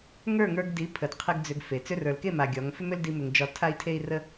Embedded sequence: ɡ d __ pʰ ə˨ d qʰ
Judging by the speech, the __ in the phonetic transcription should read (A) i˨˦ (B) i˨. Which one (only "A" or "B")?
A